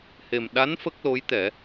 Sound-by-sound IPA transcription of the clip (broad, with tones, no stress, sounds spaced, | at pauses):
h e˨˩ m ɗ a˧˥ n f ə˦˥ k̚ l o˧˥ j t̪ ɛ˨˩˦